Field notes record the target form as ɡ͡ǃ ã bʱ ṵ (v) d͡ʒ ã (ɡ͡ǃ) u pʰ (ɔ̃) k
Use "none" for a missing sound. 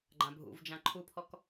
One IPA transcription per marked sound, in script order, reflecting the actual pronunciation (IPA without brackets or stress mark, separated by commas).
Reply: v, ǃʰ, ɔ